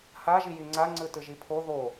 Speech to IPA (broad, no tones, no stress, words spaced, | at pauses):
haʒiji ŋ͡ǀaŋ͡ǀɯ tɯʒipʰo ðo